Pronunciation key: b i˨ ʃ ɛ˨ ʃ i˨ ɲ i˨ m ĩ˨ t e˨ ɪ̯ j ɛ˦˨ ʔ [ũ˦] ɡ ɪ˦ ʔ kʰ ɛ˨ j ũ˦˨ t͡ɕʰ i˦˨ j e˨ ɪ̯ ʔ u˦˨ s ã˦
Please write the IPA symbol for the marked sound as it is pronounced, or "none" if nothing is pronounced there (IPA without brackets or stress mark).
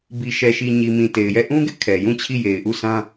ũ˦